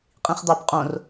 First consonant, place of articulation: uvular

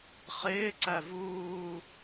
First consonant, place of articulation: uvular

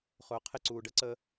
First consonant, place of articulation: uvular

